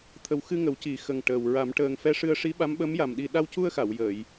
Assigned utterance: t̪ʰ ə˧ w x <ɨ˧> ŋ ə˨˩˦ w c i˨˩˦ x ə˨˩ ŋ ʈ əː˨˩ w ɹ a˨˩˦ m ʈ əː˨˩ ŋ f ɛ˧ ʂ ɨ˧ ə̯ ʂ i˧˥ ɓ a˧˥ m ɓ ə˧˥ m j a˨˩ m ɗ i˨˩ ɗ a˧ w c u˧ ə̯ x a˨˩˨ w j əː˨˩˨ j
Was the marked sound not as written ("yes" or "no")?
no